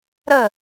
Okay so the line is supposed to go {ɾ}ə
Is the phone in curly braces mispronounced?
no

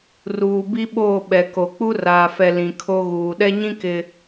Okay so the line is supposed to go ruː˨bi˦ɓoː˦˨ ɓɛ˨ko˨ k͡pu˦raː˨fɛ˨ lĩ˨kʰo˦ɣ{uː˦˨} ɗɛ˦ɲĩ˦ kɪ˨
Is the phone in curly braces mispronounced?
yes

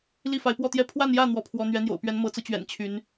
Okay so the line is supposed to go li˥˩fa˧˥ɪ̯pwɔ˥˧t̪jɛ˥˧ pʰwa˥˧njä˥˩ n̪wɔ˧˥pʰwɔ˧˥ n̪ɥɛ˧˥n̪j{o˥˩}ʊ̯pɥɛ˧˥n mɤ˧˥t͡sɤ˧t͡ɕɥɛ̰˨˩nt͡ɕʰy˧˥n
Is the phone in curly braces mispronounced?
yes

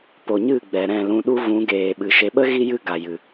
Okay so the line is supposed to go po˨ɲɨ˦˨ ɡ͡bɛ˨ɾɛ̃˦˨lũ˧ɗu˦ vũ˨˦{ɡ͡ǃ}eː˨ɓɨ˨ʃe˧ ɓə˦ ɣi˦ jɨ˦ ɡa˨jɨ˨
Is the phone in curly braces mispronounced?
yes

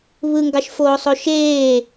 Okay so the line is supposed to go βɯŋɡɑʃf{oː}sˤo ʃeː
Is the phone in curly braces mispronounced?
no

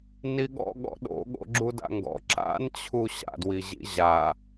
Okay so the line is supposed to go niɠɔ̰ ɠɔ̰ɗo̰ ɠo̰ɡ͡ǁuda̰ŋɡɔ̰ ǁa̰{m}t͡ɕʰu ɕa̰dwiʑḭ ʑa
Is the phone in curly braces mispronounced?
yes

